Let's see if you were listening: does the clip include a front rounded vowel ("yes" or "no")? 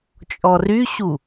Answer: yes